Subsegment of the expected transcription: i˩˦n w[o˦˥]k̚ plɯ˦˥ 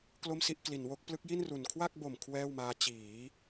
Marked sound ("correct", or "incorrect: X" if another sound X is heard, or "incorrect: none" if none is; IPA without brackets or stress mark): correct